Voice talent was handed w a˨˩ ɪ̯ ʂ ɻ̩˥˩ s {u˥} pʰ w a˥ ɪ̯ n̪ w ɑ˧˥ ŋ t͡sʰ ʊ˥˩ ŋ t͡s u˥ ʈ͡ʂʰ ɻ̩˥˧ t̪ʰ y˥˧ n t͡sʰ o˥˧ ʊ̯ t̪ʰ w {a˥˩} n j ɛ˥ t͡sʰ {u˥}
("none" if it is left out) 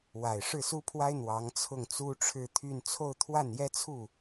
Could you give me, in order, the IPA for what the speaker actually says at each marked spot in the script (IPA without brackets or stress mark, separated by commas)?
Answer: u˥, a˥˩, u˥˩